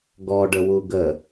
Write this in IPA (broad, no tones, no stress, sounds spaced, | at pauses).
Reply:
ɡ ɔ ɖ ə w u ɡ ə